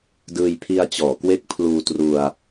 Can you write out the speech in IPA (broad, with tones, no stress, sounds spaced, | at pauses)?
d ɯː˧ j pʰ i˧ a̯ t͡ɕ ɔː˩˦ k w e˦˥ k̚ pʰ l uː˧ t r u˧ a̯